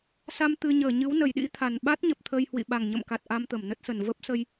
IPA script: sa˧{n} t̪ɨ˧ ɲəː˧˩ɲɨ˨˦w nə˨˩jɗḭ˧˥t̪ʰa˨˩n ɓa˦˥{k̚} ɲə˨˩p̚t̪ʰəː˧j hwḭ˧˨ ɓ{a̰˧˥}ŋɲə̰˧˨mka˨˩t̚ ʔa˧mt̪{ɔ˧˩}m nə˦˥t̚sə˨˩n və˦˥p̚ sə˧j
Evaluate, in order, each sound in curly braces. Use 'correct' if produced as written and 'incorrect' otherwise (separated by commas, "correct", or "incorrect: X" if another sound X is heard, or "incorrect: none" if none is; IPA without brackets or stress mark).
incorrect: m, incorrect: t̚, incorrect: a˨˩, incorrect: ə˧˩